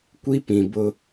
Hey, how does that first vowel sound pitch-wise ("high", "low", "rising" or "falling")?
high